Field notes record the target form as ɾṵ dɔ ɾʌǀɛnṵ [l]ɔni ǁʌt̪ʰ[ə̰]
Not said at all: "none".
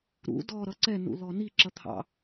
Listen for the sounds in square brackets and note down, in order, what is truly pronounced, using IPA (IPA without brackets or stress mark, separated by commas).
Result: l, ɑ̰